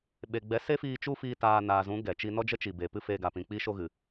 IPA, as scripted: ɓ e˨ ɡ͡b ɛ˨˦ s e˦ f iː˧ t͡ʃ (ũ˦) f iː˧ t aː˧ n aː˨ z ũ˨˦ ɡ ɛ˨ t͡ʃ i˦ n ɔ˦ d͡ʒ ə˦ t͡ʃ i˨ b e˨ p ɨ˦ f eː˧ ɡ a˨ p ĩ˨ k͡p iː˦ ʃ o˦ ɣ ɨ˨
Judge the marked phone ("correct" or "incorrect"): incorrect